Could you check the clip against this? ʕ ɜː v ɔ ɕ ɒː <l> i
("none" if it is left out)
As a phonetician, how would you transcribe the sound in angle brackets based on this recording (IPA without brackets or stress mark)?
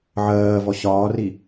r